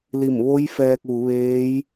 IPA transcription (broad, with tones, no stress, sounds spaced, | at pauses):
l i˧˩ m ʋ o˧˥ j f ɛː˧ k̚ ʋ u˩˧ ʋ eː˧˥ j